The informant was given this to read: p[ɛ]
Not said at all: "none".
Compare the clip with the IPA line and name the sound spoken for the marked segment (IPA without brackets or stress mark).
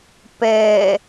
ɛ